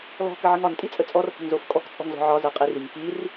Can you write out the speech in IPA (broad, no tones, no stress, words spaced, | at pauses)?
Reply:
lɔ̤ kəʕəŋɒn tʼit͡sʼət͡sʼɔr hə̤ŋzofkʼɔk t͡sʼɔ̤ŋzɔ̤ʕɒ zə˞qʼiriŋ kir